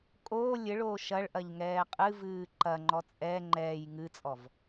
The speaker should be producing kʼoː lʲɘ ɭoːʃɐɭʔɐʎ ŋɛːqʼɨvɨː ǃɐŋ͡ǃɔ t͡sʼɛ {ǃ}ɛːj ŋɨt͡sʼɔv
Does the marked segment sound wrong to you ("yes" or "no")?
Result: yes